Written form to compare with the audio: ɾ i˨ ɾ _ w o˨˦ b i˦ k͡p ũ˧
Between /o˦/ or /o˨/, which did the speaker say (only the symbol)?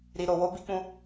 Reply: o˨